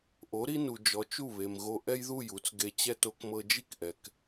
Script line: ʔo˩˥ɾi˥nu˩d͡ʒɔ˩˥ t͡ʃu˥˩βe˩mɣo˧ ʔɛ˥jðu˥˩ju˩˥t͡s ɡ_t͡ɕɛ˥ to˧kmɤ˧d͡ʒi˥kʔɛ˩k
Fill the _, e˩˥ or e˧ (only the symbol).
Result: e˧